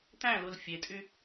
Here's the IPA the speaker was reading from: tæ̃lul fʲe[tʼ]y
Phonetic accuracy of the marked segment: correct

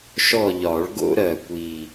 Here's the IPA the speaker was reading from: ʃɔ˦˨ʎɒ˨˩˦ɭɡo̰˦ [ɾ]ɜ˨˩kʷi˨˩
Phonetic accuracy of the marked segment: correct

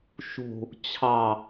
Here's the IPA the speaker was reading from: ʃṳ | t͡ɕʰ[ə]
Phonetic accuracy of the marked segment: incorrect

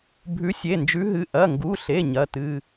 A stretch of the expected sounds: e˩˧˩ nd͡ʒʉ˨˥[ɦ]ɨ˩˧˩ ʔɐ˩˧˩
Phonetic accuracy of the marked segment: correct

